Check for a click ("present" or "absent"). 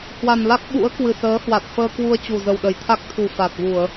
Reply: absent